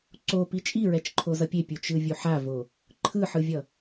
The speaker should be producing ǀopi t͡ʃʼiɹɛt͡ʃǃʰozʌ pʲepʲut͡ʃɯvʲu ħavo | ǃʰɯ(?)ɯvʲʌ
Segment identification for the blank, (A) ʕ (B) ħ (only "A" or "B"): B